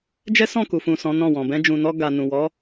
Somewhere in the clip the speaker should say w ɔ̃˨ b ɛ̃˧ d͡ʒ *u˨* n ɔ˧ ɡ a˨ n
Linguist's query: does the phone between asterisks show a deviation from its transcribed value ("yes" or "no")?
yes